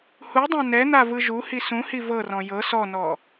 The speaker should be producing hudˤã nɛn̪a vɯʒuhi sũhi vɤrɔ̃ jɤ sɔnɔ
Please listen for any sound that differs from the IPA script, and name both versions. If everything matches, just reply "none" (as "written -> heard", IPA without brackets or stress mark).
none